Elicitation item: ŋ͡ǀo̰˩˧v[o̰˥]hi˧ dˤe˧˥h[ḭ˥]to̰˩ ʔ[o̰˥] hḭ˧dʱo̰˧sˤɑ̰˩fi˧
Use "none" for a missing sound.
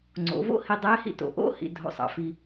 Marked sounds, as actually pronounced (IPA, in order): o̰˥, ḭ˥, o̰˥

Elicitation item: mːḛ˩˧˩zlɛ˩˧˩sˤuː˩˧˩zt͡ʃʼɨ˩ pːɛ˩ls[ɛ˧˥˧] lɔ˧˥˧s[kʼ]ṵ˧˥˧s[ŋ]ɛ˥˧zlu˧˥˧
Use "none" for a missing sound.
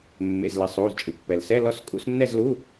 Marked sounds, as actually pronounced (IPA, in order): ɛ˧˥˧, kʼ, nː

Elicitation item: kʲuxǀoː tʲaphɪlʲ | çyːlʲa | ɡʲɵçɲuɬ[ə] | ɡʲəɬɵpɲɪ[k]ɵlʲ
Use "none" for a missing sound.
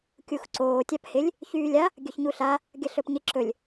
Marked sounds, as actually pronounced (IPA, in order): a, ǁ

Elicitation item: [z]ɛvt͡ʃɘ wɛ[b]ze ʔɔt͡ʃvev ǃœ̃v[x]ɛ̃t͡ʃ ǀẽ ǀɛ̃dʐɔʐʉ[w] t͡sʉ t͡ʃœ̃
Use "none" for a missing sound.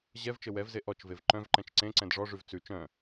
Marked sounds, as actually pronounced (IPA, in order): ʑ, v, ǃ, v

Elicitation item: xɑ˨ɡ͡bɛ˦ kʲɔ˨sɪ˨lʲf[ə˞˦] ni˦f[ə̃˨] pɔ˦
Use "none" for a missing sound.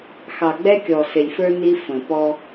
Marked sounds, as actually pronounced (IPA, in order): ə˞˦, ə̃˨

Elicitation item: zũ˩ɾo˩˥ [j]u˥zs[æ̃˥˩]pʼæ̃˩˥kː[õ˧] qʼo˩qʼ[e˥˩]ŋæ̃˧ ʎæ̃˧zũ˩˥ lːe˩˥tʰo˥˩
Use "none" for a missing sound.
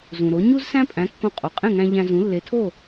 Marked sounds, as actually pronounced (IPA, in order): ɲ, æ̃˥, õ˧, ẽ˥˩

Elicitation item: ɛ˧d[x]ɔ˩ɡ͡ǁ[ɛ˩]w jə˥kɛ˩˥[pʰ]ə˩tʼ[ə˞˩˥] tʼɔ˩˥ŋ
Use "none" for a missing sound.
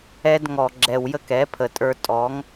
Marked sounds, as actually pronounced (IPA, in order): ŋ, ɛ˩, pʰ, ə˞˧

